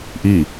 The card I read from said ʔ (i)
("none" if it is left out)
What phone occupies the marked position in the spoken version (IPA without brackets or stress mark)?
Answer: i